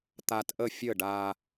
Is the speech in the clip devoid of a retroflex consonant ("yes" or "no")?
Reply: no